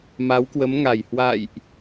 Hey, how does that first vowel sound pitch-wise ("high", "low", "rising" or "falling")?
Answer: rising